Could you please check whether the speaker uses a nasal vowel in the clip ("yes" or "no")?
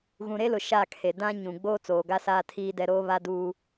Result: yes